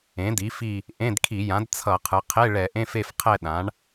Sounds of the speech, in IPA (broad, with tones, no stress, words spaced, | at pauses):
ẽ˩˥di˩˥fi˦˨ | ʔẽ˧˥˧dkʰi˧˩˧jã˩˥d t͡sʰʌ˧˩˧qʰɯ˩˧qʰe˧˥˧ ɭɛ˧˩˧ʔẽ˧˥˧fe˦˨fqʰɛ˦˨ ɗã˩˥ɳ